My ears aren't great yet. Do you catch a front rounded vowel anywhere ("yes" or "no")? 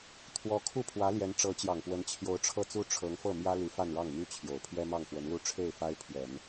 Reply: yes